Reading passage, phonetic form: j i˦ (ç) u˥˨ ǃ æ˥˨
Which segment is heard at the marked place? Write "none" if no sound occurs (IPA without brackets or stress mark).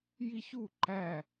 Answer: ç